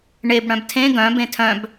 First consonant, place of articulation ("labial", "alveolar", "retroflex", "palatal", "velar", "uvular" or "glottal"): retroflex